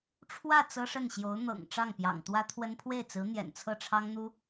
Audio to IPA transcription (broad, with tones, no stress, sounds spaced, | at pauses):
ʈ͡ʂʰ w ä˥˩ t͡s ɤ˥ ʂ ə˥˩ n ɕ j o˧˥ ʊ̯ n̪ ɤ̰˨˩ ŋ ʈ͡ʂ ɑ˥˩ ŋ p j ɑ̰˨˩ ŋ t̪ w ä˥ t̪ʰ w ə˥ n pʰ w e˥˩ ɪ̯ t͡s ɹ̩˧˥ n̪ j ɛ̰˨˩ n t͡sʰ ɤ˥˩ ʈ͡ʂʰ ɑ˥ ŋ n̪ u˥